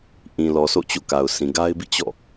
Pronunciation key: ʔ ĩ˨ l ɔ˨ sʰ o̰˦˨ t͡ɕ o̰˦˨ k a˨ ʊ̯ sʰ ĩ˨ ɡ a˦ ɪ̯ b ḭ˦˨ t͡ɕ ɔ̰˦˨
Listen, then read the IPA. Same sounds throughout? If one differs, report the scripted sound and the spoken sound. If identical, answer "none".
none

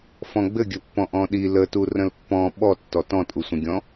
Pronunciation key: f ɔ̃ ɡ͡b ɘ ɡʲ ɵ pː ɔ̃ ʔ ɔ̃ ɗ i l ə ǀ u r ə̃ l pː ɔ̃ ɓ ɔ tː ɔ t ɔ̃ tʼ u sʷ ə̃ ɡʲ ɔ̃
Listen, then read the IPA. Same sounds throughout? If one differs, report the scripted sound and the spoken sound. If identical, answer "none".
ǀ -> t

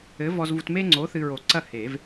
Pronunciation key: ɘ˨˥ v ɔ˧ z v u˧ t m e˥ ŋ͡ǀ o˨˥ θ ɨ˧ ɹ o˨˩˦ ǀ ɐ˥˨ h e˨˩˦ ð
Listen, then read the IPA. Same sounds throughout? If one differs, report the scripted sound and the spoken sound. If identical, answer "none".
ð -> v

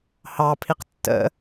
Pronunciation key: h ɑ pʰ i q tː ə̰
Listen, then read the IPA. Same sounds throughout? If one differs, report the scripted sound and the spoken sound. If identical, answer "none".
none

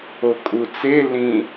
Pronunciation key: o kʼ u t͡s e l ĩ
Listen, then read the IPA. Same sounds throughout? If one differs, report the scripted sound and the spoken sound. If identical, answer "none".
none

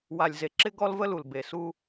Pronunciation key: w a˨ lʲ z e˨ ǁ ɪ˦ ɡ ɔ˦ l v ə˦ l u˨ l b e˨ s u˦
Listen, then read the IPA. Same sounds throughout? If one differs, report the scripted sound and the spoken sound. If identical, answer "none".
none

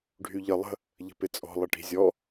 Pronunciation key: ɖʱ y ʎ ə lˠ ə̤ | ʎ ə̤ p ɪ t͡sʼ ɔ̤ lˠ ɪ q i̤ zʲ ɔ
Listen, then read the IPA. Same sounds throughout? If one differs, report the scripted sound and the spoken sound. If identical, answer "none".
q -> ʈ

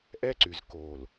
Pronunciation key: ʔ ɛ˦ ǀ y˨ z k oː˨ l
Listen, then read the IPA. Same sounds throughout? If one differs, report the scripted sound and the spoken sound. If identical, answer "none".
none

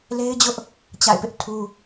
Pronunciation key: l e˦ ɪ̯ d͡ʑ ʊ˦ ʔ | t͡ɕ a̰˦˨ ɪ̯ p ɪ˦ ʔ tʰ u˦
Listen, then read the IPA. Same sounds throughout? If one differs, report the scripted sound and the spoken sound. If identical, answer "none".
none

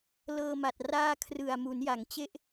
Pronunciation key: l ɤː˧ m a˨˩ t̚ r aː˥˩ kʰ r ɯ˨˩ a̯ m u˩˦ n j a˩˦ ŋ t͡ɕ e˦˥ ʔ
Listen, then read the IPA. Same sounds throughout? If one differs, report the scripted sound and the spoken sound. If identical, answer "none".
none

